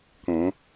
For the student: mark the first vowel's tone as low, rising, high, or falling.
rising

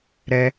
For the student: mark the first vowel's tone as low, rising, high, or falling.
high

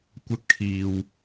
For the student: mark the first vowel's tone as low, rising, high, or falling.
high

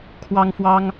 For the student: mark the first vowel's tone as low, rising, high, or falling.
high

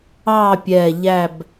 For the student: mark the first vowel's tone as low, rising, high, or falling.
falling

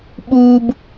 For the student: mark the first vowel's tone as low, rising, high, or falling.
high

